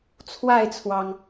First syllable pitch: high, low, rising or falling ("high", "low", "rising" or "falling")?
falling